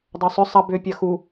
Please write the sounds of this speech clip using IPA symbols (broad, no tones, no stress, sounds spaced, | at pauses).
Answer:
dˤ œ sˤ ʏ sˤ ɐ b ʏ pʲ ɐ x u